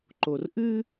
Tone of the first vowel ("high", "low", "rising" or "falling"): low